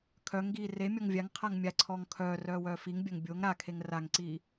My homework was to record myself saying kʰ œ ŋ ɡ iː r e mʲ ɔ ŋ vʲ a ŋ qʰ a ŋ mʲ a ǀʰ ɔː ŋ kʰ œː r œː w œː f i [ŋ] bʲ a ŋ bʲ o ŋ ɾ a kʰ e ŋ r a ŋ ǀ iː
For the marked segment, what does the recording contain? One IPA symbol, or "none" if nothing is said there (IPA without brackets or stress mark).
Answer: ŋ